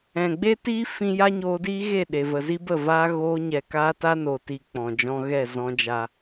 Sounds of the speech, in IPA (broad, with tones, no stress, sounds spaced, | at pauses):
ɛ̃˨ ɡ͡b e˦ t iː˦ f ĩ˦ j a˦ ɲ oː˧ d iː˦ ɣ e˦˨ ɗ e˨ v ə˨ z i˦ b ə˦˨ v aː˦ ɣ oː˧ ɲ ɛ˨ k aː˦ t a˦ n o˨ t i˨ k͡p ɔ̃˨ d͡ʒ ɔ̃˧ ɣ ɛ˦˨ z ɔ̃˦ d͡ʒ a˦